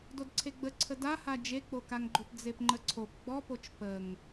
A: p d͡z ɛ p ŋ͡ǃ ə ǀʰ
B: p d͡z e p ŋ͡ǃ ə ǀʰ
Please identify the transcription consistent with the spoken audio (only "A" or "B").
B